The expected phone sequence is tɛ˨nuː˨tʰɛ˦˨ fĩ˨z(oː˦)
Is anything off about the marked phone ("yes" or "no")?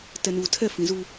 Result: yes